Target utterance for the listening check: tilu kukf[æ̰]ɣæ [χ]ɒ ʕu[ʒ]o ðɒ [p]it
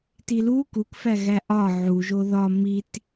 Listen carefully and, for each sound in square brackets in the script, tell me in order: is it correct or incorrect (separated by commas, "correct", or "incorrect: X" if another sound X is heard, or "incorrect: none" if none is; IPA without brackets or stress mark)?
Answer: incorrect: æ, incorrect: ʔ, correct, incorrect: m